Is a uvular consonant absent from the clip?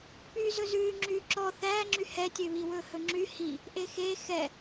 yes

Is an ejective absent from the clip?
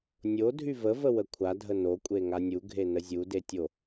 no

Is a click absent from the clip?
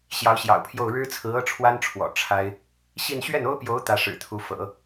yes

